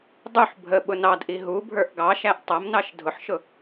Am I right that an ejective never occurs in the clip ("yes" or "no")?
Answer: yes